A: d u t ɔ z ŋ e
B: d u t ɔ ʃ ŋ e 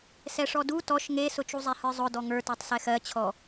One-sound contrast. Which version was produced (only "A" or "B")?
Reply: B